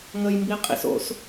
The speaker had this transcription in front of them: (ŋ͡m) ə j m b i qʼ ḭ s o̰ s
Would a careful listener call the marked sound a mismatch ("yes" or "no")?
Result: yes